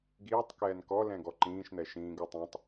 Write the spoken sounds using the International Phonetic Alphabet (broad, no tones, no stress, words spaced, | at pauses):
ɡiːtˤkɛːn kɔlɛ̃ ɡɔǃĩːʃn̪ɛ ʃĩːɡu tˤɛ̃tˤ